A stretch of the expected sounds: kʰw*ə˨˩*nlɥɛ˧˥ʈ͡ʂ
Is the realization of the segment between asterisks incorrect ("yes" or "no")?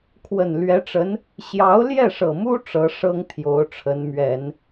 no